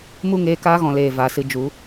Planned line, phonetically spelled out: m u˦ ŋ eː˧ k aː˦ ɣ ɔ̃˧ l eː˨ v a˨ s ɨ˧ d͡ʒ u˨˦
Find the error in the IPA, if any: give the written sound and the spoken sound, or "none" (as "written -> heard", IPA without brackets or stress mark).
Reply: none